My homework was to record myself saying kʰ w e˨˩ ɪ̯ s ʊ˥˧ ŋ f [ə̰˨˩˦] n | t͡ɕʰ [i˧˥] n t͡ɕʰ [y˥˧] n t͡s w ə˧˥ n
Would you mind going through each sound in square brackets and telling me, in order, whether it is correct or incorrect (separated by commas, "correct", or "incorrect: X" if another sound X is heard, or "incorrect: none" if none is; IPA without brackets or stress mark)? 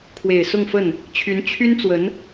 incorrect: ə˥˩, incorrect: y˧˥, incorrect: y˥